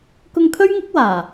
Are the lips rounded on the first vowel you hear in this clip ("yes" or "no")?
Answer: yes